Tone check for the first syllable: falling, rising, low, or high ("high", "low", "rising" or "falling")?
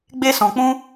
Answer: high